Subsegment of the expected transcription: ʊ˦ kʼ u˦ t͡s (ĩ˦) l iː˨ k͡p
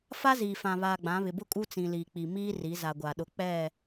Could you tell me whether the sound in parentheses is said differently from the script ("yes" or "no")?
yes